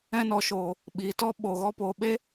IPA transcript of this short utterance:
ɛ̃˧nɔ˨ ʃoː˨ | ɓi˨tɔ˧ ɓo˨ɣɔ˧po˨ ɓe˦

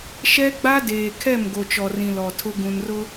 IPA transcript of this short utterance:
ʃɛ˦ɡ͡ba˦ deː˨kʰɛ˦˨m ɡo˨t͡ʃɔ˨rĩ˨ lɔ˨tʰʊ˦ ɡũ˨nrʊ˦

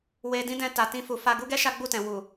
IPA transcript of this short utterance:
we˧dĩ˦dɛ̃˧ ta˨tĩ˧ fu˨ fa˧ ɡu˦ɡɛ˦ ʃa˦ ɡ͡bu˦˨tɛ̃˨ wu˨

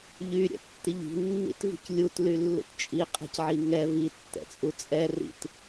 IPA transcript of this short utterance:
ʎy ɾʲɛ̰tːiʎi̤ nːḭtvi̤clʲut lylːṵtt͡ʃʼi qʼɛ̤cʕiŋɛ vi tːɛ̰t͡sʼut͡sʼɛ rḭt

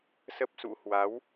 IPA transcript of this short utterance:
sə˦˥p̚sṵ˧˥hwa˨˦w

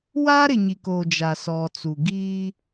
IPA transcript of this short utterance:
waː˦ɾɪ˨ɲi˨koː˨ d͡ʒa˨sɔ˨t͡su˨ ɡiː˦

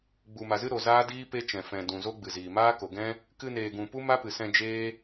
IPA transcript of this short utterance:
ɡ͡bu˨ma˨zɨ˦ ɾo˨zaː˦diː˦ pe˦t͡ʃɛ̃˨ fɛ̃˨ dũ˨zo˦ɡ͡bɨ˨ziː˨ maː˦ko˨ɡɛ̃˦ | kɨ˧neː˨ɡũ˨pu˦ ma˦pɨ˨sɛ̃˧ d͡ʒeː˦

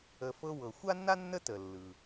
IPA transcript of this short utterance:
ə˩fɤ˨ wɤ˩xʷa˥nːa˥ nːə˦tə˩lːɯ˩

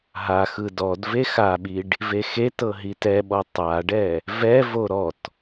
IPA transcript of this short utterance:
ɦaxɯ dɔd vexaɓiɖ | vexetɤ ɦitɛɓɔ tˤaɖɛ | vɛvo ɾɔt

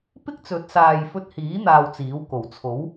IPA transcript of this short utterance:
pɪ˥k̚ t͡sɵ˨˥t̚saː˨jfɵ˧t̚hiː˨˥ n̪aː˧wt͡siː˨˥w ko˨˩wt͡sʰo˨˥w

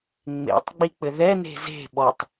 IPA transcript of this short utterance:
ŋ͡mḛtˤɡ͡bik͡pɘ ðɛne̤ ze̤ ɓɔtˤ

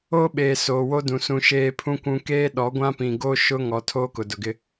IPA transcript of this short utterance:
oː˦ɓeː˨ soː˨wo˦dũ˨ sũ˨ ʃeː˦pʰũ˦kʷũ˦ keː˦ɗɔ˨˦ ɡʷã˦pĩ˨ɡoː˦ ʃʊ˦ŋɔ˨ tʰoː˦kʊ˨dʊ˨ɡɪ˦

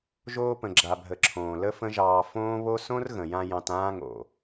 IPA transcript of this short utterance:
ʒoː˧pə̃˨ɡ͡ǁa˨bʱə˨ ǁʰõː˨lə˦fə̃˦ʒɑː˧ fõː˦βo˦ sõ˦rɣə̃˨jã˧ jɑ̃˧tãː˦ŋo̰˨

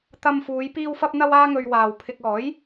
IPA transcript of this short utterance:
t̪ɐ˧mfuː˨˧j piː˧wfɐ˧p̚n̪ɐ˧w aː˧ŋɵ˨ɥ waː˨wpʰɪ˧k̚ ɔː˨˥j

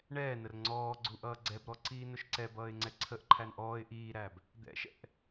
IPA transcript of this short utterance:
ɳɛːnər ŋ͡ǀɔːɡ͡ǀu ʔʌːɡ͡ǀɛbɾɔ ǀiːnʊʃǀɛbʌːɪ̯ ŋ͡ǀɛǀʰəʔǃʰæn ʔɔːɪ̯ ʔiːɾæb | d̪ɛ̰ʃɛ̰ʔ

